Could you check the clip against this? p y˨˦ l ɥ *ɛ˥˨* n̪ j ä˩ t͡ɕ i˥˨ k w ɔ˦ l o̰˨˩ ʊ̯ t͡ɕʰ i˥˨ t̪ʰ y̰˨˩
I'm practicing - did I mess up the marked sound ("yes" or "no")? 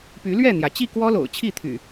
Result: no